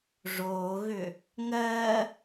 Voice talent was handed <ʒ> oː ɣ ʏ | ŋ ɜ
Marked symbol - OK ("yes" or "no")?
no